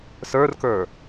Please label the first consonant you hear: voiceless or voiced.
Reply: voiceless